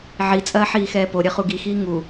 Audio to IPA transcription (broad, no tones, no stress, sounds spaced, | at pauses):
ʕ i t͡sʼ ɐː ħ iː x ɛː p o ɾʲ ɐ χ u ɡ i x iː ŋ u